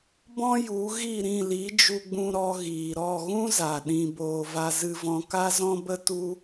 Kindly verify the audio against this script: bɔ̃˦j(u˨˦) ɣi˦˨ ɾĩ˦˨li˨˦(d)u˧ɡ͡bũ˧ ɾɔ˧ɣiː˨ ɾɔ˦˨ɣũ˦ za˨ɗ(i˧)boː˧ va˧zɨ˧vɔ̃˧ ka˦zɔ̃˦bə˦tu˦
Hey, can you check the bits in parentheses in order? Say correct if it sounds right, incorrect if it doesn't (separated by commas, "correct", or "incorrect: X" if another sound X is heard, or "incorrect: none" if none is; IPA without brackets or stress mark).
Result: correct, incorrect: d͡ʒ, incorrect: ĩ˧